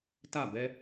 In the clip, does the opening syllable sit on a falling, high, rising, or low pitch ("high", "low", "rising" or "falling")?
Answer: falling